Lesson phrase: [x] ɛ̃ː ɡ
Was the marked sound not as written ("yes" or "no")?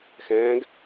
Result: no